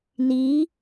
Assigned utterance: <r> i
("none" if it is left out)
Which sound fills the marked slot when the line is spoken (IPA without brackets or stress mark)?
n